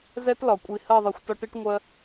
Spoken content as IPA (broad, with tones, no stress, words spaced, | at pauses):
zɛ˦tlɒ˨ kʷʼi˨hɜ˦˨ðˤi˨xʷ tɒ˦ʈi˦ʈŋʷɜ˦